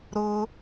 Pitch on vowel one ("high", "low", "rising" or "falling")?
high